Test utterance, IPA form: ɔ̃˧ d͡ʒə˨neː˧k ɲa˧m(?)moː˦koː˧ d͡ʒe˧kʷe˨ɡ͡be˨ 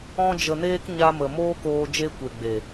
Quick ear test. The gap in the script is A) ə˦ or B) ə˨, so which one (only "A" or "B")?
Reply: B